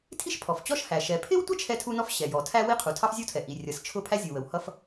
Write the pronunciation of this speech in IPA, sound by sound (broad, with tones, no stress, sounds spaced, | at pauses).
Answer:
tʰ i˥ ʃ pʰ ɔ˩ f t͡ɕ ɔ˥ ʃ h æ˩ ʃ ɛ˩ pʰ ɪ˥ w tʷ ə˥ t͡ʃʰ ɛ˥ tʰ u˥ n ɔ˥ f ɕ ɛ˩ j ɔ˩ tʰ æ˥ w i˥ qʰ u˩ tʰ ɑ˥ f zʲ ʌ˥ w tʰ ɛ˩ ʔ i˩ rʲ ʌ˩ s t͡ʃʰ ʊ˥ pʰ æ˥ zʲ u˩ w ə˩ w h ʌ˥ f